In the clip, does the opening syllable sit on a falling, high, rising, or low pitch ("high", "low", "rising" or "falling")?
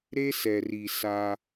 high